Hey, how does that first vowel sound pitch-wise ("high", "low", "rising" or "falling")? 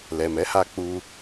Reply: low